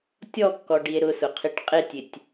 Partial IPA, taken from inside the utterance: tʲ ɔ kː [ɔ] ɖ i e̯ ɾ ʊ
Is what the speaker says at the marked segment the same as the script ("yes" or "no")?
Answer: yes